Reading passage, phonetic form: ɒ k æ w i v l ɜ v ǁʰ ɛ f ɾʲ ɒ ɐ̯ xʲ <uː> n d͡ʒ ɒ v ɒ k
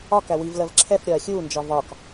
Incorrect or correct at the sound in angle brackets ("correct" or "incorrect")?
correct